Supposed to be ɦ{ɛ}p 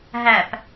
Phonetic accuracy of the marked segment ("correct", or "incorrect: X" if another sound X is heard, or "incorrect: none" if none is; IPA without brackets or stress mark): incorrect: æ